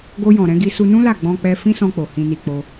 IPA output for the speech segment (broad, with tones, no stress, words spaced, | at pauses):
ɡo˧jɔ̃˨ɾɛ̃˧ ɡi˧su˧nũ˦la˦˨ ɡ͡bɔ̃˧k͡pɛ˧ fĩ˦sɔ̃˧k͡po˨ hĩ˨ni˨ k͡po˧